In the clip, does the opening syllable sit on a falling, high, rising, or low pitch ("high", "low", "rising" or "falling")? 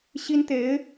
high